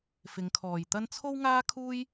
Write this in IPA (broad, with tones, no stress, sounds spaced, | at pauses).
f ɪ˨˧ ŋ kʰ ɔː˨ j t̪ ɐ˥ n t͡sʰ o˥ w ŋ aː˥ kʰ uː˥ j